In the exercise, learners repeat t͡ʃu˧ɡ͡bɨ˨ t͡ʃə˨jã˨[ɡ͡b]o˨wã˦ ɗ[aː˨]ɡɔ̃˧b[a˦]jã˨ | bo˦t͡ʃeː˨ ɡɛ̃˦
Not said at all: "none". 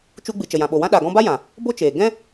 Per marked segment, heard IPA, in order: ɓ, a˨, a˦

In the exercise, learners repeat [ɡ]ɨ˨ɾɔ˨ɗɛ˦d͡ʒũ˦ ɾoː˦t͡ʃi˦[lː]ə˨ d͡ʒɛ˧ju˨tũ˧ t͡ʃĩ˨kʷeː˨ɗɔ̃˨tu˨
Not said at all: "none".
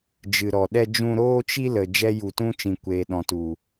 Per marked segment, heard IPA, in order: d͡ʒ, l

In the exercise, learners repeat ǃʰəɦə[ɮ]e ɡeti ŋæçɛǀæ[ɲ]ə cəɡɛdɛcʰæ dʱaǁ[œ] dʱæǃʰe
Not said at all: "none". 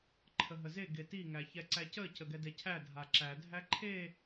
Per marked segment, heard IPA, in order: z, c, æ

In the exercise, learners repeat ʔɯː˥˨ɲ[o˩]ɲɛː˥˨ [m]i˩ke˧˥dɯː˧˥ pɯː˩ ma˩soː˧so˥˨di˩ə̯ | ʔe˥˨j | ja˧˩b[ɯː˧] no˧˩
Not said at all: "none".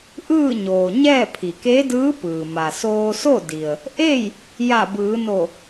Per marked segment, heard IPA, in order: oː˩, pʰ, ɯː˩˧

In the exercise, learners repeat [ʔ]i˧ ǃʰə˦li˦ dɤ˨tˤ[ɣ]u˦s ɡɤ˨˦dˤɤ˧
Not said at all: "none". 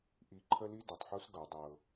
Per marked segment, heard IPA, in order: ʔ, ħ

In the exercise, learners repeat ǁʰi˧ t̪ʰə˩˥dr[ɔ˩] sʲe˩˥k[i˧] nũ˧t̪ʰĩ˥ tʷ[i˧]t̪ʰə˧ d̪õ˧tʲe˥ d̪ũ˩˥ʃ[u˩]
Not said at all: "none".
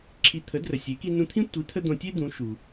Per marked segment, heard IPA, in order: ə˩, i˧, i˩˥, u˩

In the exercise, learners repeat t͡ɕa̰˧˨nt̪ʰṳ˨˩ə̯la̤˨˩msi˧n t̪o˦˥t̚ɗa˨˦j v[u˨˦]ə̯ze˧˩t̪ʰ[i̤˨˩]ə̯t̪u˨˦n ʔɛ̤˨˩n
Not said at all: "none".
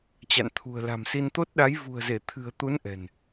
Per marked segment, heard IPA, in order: ṳ˨˩, ɨ̤˨˩

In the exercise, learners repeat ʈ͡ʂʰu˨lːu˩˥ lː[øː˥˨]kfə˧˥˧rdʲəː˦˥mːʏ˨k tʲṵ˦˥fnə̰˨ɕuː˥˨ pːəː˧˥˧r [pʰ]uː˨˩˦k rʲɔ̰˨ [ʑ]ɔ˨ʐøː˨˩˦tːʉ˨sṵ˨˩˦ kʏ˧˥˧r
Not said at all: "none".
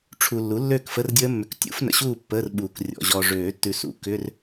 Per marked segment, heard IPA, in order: øː˥˨, ɓ, ʑ

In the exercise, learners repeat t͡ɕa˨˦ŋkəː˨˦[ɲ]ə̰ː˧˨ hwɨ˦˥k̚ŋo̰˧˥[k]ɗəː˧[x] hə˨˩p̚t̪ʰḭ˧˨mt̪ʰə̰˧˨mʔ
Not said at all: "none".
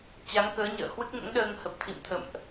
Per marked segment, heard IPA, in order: ɲ, ŋ, ŋ

